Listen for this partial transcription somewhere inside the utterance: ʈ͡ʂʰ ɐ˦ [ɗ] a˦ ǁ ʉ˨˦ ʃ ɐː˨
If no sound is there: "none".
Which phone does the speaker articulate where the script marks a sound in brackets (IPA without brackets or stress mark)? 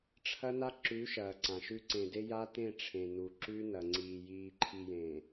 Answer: n